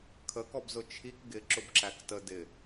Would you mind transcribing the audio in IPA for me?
kʰəkɔbzʊ t͡ʃʰik ɡɪǁʊbǁæk tə dɪ

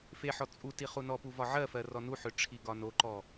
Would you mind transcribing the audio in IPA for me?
feħɔ t͡sʼu tiχunɔpu vɒʕɜfɜ rɔnuħʏ ʈ͡ʂʰiɡɒnoǃɔ

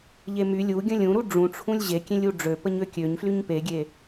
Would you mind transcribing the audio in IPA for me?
ʎemy lʲu ɡʲə̃lʲũɾu ɖ͡ʐũʈ͡ʂʰũlʲ ʑekʲẽlʲ uɖ͡ʐø pəɲøkʲøɲ flyɲpeɡʲe

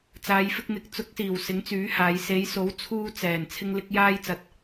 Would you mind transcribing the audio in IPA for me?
t͡saː˨˧jfɪ˧k̚n̪ɪ˨k̚ t͡sʊ˨˥k̚siː˨˩w sɪ˨˥ŋt͡syː˨˥haː˨˧j se˨˧jso˨˥w t͡sʰuː˧ t͡sɛː˨˩n t͡sʰɪ˧ŋlɪ˧k̚ jaː˧jt͡sɐ˨t̚

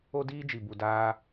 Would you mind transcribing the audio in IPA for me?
o˦diː˦d͡ʒi˨ bu˧daː˦

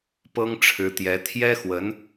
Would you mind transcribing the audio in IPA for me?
pɤ˥ŋʈ͡ʂʰɻ̩˧˥t̪jɛ˧˥ t̪ʰjɛ˥xwə˧˥n

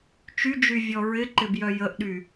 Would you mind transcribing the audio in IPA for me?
t͡ʃyd͡ʒyvʲɔ ɹɪǃɪbjœ jəʔɗy

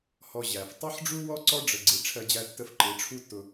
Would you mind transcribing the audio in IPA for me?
hɔ˧ ʑæ˨f tˤʌ˦ħɖ͡ʐu˦wɔ˦ ǀɔ˦ɖ͡ʐə˨ɡ͡ǀi˨ ʈ͡ʂʰɜ˧d͡ʑæ˧tːə˧f ǃɪ˨˦ʈ͡ʂʰu˦tːʊ˧

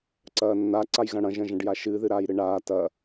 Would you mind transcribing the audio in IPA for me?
ǀɐːnːa ǀajɣɐ̃ɽɐ̃ ʒɐ̃ʒɐ̃ɖjaʃɨ ðɨɾaːjɾɨɳaː tɐ

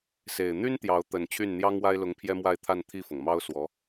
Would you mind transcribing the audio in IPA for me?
se˨˩ɪ̯ n̪y˥n t̪jɑ˧˥ʊ̯ t̪ə˨˩n t͡ɕʰy˥˩n n̪jɑ˥ŋwa˥ɪ̯lʊ˧˥ŋ pʰjɛ˥mwa˥˧ɪ̯t̪ʰa˥˧n t̪ʰi˥˩fɤ˩ŋmɑ˥ʊ̯ swɔ˧˥

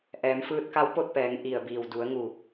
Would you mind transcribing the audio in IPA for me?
ʔɛː˩˧mfɯː˧t̚ka˧˥w po˥˨t̚pɛː˩˧ŋ ʔi˧˩ə̯biː˧˩w du˩˧ə̯ŋu˧˩

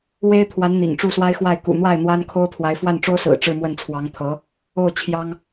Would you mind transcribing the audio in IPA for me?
we˥ɪ̯t̪ʰwa˧˥n n̪ḭ˨˩ŋʈ͡ʂu˥˩swa˥ɪ̯xwa˥˩ɪ̯ kṵ˨˩n̪wa˥˩ɪ̯ n̪wa˥nkʰo˥ʊ̯pʰwa˧˥ɪ̯ fwa˥˩nʈ͡ʂo˥ʊ̯sɹ̩˨˩ ʈ͡ʂɻ̩˥˧mwə˥˩n t͡sʰwɑ˧˥ŋt̪ʰɤ˧˥ | o˥˩ʊ̯ t͡ɕʰjɑ˥ŋ

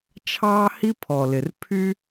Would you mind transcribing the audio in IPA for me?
t͡ʃʰɑː˦hi˦ pʰɔ˨lɪ˨r pʰy˦

